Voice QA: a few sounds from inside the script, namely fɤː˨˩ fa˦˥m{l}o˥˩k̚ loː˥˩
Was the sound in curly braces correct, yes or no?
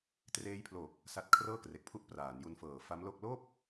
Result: yes